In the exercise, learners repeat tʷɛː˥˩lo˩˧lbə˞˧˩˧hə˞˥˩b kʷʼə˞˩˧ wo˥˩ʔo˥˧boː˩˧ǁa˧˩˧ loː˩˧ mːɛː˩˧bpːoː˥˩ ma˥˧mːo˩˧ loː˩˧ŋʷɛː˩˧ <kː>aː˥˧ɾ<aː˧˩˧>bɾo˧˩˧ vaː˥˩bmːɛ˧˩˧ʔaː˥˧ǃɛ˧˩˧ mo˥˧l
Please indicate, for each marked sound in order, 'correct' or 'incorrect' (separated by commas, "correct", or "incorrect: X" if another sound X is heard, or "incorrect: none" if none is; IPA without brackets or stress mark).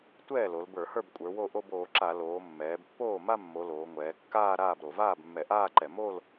correct, incorrect: aː˥˩